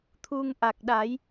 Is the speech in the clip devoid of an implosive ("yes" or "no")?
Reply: no